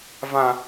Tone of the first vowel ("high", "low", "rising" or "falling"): high